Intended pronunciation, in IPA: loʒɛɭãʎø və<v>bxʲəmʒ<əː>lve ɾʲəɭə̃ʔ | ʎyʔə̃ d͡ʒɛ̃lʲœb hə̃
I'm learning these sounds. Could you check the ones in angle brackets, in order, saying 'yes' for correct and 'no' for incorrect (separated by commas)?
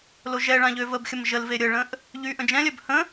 no, no